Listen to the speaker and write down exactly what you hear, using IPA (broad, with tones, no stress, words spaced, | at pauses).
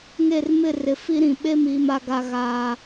ŋe˦˨rmɪ˦˨ rɪ˨fi˦ ɾĩ˨ ɓe˦miː˨ma˨ɡa˨ ɣaː˨